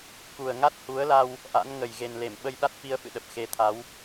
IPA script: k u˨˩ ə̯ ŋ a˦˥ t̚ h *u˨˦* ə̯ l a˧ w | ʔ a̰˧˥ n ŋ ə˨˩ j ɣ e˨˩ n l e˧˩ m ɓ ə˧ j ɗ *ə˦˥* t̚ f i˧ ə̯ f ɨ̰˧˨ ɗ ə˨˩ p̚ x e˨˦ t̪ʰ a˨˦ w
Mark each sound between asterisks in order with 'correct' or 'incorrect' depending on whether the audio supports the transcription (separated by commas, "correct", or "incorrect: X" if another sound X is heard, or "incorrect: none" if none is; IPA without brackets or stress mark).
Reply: correct, incorrect: a˦˥